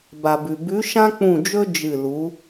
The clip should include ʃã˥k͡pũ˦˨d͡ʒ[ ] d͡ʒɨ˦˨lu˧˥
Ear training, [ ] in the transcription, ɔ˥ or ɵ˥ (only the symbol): ɵ˥